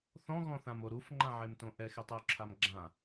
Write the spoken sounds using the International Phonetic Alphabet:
θ ɔ̃ ɣ ɔ̃ θ ã m o ɾ u f ŋ͡ǃ ã ʕ e m t õ ʔ ɛ x e tˤ ɪ u̯ ǁʰ a m ɡ͡ǁ ã

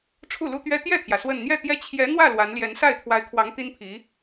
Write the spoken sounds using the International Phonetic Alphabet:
ʈ͡ʂʰ u˥˩ l u˥ t̪ ɥ ɛ˥ t̪ j ɛ˥˩ t̪ʰ j ä˩ s w ə˥˧ n n̪ j ɛ˥˩ t̪ j ɛ˥ t͡ɕʰ j ɛ˧˥ n̪ w ä˥˩ l w a˧˥ n l j ɛ˧˥ n s a˥˩ ɪ̯ t̪ʰ w a˧˥ ɪ̯ kʰ w ɑ˧˥ ŋ t̪ i˥ n pʰ i˧˥

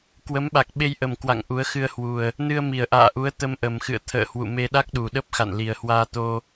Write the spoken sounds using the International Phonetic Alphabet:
k w ə˨˦ m ɓ a˨˩ k̚ ɓ e˧ j ʔ ə˨˩ m k w a̰˧˨ ŋ ʔ u˨˦ ə̯ x ɨ˧ ə̯ h w u˨˩ ə̯ | n ɨ˧ ə̯ m i˨˩ ə̯ ʔ a̰ː˧˨ ʔ u˨˦ ə̯ t̪ ə˧ m ʔ ə˨˩ m x ɨ̰˧˨ ə̯ t̪ʰ ə̰ː˧˨ h w ṵ˧˨ m e˧ ɗ a˦˥ k̚ ɗ u˨˩ ɗ ə˦˥ p̚ x a̰˧˨ n l i˨˩ ə̯ h w aː˧ t̪ o˧

